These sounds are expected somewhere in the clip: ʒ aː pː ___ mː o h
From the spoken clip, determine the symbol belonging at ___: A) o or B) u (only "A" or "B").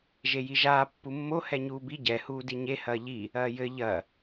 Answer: B